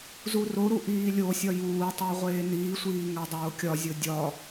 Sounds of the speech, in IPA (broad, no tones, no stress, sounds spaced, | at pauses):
z u r o ɾ u ʔ iː lʲ o sʲ ɒ j uː tˤ æ ʁʷ eː n iː sʷ iː ŋ æ dˤ oː kʲ ɒ zʲ o dʲ ɒ